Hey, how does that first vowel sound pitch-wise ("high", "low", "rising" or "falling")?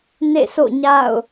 falling